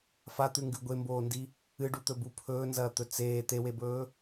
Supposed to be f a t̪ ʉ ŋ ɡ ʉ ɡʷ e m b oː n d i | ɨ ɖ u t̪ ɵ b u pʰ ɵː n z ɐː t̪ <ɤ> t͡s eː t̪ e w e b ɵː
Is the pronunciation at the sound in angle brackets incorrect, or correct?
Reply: incorrect